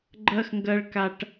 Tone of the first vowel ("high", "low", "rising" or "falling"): high